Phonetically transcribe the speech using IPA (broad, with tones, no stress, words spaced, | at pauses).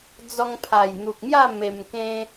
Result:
d͡zɔ˧ŋpʰa˨˩jn̪u˨k̚mja˥˧ me˧mkẽ˦